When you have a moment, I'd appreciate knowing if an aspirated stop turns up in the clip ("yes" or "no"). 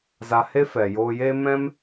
no